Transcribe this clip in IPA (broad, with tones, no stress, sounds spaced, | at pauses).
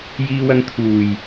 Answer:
j iː˧ w ɐ˧ ŋ t̪ʰ uː˨˩ j